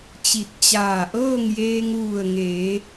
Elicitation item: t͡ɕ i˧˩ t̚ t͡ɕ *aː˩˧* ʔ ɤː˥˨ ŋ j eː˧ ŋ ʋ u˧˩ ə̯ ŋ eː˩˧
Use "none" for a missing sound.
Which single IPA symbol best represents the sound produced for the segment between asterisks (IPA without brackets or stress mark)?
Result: aː˧˩